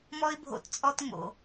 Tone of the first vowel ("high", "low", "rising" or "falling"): high